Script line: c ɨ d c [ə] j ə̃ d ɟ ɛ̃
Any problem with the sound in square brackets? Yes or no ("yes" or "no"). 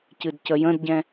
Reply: no